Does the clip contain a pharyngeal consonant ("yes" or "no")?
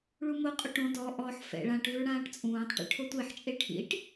yes